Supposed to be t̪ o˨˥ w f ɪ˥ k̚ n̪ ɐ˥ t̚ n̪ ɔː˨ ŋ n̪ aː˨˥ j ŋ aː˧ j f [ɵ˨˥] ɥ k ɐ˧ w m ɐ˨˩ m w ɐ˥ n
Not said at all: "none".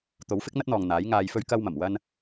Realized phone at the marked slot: ɵ˧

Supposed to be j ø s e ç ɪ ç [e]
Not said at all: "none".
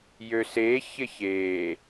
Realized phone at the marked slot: e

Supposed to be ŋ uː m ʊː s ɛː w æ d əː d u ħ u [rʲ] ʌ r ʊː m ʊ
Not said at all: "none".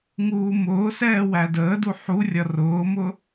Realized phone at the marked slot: rʲ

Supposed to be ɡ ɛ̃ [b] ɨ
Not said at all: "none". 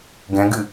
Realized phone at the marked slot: ɡ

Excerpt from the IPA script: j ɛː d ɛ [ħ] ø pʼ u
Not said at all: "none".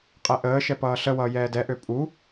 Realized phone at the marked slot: ʔ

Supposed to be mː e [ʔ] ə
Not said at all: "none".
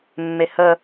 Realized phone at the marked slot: h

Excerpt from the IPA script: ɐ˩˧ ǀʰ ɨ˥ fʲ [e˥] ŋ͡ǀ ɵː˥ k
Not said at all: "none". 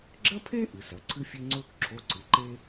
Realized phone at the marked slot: e˥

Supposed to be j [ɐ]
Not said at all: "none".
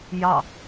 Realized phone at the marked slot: ɑ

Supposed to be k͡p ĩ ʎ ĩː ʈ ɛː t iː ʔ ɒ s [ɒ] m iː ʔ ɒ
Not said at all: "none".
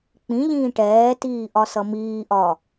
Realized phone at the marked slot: ʌ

